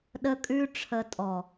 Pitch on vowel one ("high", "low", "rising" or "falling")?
high